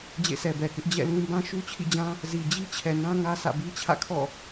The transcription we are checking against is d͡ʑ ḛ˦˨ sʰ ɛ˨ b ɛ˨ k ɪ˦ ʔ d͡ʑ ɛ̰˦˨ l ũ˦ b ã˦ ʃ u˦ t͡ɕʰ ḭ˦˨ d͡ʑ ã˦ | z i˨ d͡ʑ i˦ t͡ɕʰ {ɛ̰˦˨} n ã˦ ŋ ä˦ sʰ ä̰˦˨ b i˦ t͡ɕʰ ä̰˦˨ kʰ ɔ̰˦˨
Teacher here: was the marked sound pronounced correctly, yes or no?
no